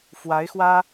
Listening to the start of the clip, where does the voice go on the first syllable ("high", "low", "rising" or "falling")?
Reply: rising